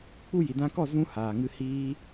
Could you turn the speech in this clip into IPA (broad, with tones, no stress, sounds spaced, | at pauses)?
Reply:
k͡p u˧ j i˨ d ã˧ k ɔ˦˨ z ũ˦ h aː˨ ŋ ɨ˧ h iː˦